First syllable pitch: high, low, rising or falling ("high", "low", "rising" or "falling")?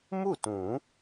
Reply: falling